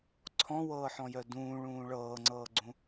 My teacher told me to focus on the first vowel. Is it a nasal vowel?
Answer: yes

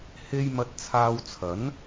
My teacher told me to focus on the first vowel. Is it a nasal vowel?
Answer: no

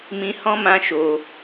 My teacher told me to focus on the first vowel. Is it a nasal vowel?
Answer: yes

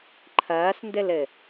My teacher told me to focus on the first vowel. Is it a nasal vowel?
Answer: no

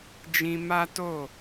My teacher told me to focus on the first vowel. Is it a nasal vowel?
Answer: yes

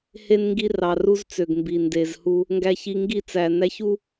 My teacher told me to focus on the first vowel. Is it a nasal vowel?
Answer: no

